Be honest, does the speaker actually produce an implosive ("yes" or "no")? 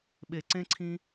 yes